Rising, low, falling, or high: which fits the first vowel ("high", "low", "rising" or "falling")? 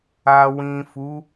low